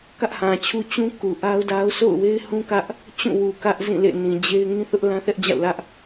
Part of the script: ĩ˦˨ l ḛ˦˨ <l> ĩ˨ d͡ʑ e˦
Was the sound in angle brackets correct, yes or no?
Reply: no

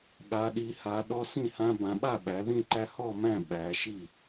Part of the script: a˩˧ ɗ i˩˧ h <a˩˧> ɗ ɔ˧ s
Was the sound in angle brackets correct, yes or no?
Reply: yes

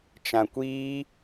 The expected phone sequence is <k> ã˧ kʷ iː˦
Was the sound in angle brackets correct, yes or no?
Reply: no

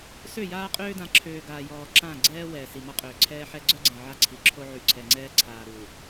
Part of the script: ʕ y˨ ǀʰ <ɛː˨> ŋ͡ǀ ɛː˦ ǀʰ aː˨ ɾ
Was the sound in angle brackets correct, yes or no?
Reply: no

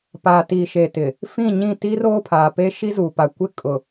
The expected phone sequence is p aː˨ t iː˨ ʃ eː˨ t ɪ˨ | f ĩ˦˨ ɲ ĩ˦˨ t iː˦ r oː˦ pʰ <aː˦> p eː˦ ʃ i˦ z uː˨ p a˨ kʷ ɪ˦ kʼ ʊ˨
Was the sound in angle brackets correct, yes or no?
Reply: no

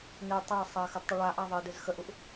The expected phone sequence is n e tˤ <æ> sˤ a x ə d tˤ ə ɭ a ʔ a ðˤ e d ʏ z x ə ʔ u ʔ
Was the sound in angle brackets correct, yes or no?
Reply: yes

